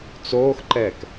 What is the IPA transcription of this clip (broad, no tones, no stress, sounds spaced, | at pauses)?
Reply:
t͡s oː x ǃ ɛː k